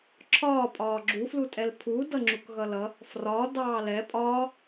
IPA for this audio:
ǁʰ ɒː pʼ ɒː ɡ͡ǁ u f l u tʼ ɛ l pʰ u d ʌ ŋ͡ǁ u k ɣ ʌ l ʌ | f r ɒ d ɑː l ɛ pʼ ɒː

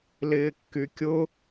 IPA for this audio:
l ɪː kː y kʲ ʊ

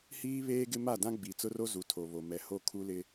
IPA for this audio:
h iː˦ β eː˦ ɡ ɪ˦ m a˦˨ d ã˦ ɡ͡b i˨ t͡s ʊ˦ r o˦ z u˨ tʰ o˨ β o˨ m ɛ˨ h o˦˨ kʰ u˦ l ɪ˦

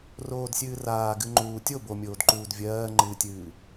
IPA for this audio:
r oː d sʲ ɨː r aː ɡ ɨ ŋ͡ǃ uː tʲ o b o mʲ oː d ǃ uː d vʲ ɜː ŋ͡ǃ ɨː tʲ ɨː

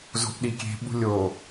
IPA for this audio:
z o̤ ʔ ɗ i kʲ e̤ ɓ ṳ lʲ o

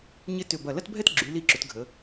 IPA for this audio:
ɲ ɪ˧ t ʏ˧˩ b ɐ˧˩ l ɐ˥ t bʱ ɛ˥ t ɡ͡ǁ y˩˧ l i˧˩ ǁ ʏ˩˧ t ɡʱ ə˩˧

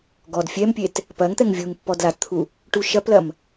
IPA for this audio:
ɡ ɔ d fʲ ɛ m pʲ e t | p ɐ ŋ t̪ ɛ ŋ vʲ u ŋ pː ɔ d l a t t̪ʰ u | ʈ u ʃ ɐ p l ɐ m

